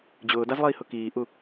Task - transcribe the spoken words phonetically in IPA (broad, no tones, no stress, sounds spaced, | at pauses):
d͡ʑ ʊː d a z lˠ iː h ʊ k iː ʔ u